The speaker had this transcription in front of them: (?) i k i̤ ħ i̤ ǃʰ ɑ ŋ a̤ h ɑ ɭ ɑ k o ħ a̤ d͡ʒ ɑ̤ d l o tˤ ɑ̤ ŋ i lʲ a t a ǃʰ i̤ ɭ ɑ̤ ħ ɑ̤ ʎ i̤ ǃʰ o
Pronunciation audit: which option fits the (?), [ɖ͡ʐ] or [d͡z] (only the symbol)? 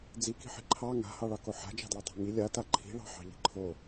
d͡z